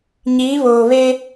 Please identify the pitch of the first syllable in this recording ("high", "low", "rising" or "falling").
rising